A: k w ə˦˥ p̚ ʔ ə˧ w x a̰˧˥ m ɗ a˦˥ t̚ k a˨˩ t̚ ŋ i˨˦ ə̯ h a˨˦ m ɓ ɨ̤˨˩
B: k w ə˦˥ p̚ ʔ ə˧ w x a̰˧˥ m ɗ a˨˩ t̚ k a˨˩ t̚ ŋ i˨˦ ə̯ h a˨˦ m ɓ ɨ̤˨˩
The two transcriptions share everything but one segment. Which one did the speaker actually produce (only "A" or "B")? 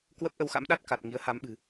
A